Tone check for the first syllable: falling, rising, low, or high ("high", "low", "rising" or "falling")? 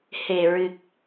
low